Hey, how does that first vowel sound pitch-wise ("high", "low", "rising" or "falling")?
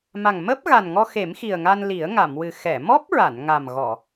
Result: low